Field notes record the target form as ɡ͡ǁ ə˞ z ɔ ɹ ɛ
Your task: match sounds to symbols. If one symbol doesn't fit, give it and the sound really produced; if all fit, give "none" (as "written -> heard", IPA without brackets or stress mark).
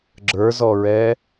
none